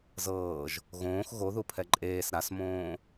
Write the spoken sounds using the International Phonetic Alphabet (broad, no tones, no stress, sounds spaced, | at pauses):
z ɤː ʒ | ɣ õː x ɣ o ð u pʰ ɛ ǃʼ eː s ɾ a s m õː